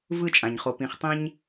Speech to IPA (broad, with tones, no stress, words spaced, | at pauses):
vɯ˦˨t͡ʃʼã˨ɲχo˨ pĩ˨χ tˤɛ̃˦ɲ